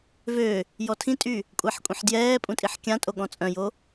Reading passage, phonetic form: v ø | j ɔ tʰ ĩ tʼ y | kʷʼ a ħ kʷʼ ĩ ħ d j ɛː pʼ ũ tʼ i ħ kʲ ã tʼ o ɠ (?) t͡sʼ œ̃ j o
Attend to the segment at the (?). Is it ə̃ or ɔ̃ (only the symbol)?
ɔ̃